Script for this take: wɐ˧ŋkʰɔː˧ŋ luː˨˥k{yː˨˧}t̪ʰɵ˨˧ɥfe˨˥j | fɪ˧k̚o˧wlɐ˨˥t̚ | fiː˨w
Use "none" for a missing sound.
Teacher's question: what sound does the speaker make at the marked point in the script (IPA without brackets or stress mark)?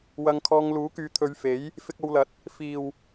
yː˨˧